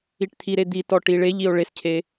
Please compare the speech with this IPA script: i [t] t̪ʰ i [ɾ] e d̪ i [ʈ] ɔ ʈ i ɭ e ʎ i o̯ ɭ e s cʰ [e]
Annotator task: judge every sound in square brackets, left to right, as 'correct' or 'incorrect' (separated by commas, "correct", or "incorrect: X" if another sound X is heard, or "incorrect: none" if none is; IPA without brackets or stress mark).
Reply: incorrect: ʈ, correct, incorrect: t, correct